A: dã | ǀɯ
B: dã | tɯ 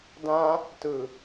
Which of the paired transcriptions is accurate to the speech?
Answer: B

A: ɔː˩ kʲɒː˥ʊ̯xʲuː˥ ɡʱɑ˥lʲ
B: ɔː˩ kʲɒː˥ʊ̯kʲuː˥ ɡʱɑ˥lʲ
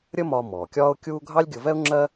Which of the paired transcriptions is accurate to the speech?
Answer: B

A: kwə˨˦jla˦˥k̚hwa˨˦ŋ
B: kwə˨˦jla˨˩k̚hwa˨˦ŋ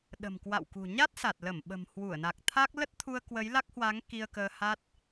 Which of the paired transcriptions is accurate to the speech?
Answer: A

